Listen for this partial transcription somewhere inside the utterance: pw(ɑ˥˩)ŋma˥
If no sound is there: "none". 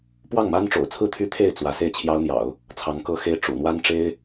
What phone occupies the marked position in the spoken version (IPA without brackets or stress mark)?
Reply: ɑ˥˩